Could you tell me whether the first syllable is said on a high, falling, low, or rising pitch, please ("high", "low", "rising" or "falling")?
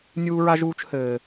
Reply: high